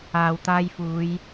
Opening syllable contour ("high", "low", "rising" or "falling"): low